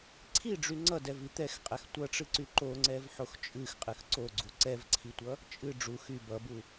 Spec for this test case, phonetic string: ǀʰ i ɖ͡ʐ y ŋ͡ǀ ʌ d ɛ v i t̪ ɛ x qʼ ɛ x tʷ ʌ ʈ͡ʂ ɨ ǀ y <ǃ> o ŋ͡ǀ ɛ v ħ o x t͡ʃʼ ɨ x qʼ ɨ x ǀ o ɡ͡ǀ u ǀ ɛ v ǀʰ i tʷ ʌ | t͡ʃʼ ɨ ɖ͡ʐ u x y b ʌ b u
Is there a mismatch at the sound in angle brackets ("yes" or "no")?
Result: no